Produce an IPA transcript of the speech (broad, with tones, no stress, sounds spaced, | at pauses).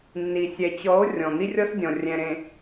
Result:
nː i˨ sʲ ɛ˨ t͡ɕ ɔ˨˦ o̯ rʲ ɔ̃˨ n̪ i˦ rʲ ɔ˦ s dʲ ɔ̃˨ rʲ ɛ̃˨ ɾ ẽ˨